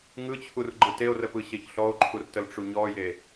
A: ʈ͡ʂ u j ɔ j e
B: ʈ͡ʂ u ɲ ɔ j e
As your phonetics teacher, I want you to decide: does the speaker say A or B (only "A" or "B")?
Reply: B